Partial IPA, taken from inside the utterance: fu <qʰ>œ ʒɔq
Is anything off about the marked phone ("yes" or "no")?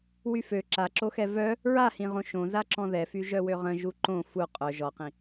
yes